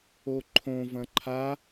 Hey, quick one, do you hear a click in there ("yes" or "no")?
yes